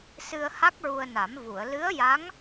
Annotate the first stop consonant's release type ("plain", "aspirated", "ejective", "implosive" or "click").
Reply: plain